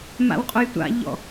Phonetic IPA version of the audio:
ma̰wqʼʊjtʷa̰ʎɔ̰

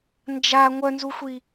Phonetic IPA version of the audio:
nd͡ʒa ŋʷœnzuxʷi

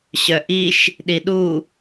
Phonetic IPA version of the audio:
ɕœʔiʃ | ɗiɗu

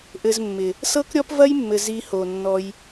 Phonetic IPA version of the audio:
ʔɘ˧zmːɪ˨ | sɤ˦kɾʲɔ˦pvɐ˦jmːɘ˨ zi˧ho˨nːɔ˧j

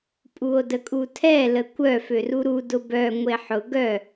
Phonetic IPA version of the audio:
pʼuo̯dəkʼutʰɛ ləkʷœ føruɾu dʊbœ ŋʷeħʊ ɡœ

